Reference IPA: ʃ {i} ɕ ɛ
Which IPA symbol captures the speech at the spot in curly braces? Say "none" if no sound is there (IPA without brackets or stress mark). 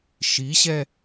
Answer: i